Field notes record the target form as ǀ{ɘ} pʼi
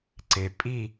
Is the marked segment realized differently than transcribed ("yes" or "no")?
yes